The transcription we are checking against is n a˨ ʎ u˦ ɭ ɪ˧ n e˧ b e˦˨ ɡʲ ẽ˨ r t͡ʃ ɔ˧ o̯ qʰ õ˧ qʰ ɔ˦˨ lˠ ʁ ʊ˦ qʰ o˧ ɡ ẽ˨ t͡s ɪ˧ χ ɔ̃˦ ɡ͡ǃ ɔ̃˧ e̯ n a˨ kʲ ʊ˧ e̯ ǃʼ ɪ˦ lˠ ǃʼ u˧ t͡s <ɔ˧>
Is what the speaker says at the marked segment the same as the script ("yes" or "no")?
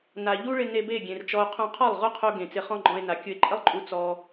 yes